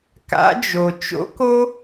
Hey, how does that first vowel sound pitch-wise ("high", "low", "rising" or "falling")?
rising